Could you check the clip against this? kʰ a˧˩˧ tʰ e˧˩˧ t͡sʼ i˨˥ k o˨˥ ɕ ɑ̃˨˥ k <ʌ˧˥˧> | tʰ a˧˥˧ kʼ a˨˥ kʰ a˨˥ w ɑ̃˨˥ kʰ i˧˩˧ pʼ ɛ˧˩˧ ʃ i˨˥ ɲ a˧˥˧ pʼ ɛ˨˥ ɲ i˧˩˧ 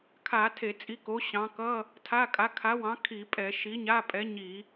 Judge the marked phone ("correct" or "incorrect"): correct